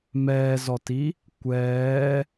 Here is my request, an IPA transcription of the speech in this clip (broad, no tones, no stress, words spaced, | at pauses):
mɛːzɔti | kʷɛː